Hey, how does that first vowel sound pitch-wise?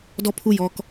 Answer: high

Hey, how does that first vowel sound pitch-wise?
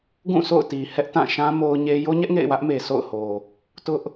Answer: falling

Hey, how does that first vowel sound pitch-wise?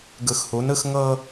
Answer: low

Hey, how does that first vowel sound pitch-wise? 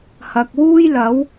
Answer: low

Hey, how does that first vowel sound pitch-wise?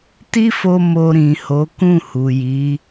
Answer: high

